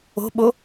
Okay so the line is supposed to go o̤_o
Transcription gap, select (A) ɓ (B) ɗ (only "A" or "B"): A